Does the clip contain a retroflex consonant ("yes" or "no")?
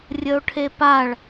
yes